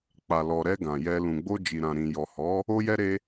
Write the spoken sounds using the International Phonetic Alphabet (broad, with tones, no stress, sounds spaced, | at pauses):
k͡p a˨ l ɔ˨ ɾ ɛ˧ ɡ ã˨ j ɛ˧ l ũ˨ ɡ͡b o˧ d͡ʒ i˨ ɾ ã˨ ɾ ĩ˨ j ɔ˨ h ɔ˨˦ | o˧ j ɛ˧ ɾ e˧